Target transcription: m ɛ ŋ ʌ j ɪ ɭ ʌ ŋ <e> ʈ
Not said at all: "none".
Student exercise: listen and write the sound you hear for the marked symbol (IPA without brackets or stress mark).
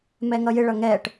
ɛ